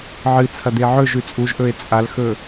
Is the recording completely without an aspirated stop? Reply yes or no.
no